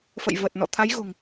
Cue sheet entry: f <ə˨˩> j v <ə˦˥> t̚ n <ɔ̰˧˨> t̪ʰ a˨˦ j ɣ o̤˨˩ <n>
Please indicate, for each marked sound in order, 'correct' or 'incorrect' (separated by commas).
incorrect, incorrect, correct, incorrect